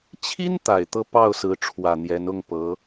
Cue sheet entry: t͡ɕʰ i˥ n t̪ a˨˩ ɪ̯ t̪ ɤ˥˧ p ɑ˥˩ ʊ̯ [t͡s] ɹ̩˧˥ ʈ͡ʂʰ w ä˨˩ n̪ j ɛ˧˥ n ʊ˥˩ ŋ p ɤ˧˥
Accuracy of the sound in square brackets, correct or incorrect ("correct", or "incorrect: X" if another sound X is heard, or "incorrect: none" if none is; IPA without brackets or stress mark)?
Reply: incorrect: s